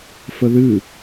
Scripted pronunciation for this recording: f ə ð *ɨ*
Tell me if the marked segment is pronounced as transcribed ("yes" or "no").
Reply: yes